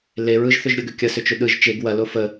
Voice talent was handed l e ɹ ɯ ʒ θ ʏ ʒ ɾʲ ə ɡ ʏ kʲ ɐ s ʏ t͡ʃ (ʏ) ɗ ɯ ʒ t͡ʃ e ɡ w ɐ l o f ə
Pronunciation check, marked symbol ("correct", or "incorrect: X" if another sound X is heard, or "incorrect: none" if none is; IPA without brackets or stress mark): correct